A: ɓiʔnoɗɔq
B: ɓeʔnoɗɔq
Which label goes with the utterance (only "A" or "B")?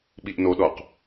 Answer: A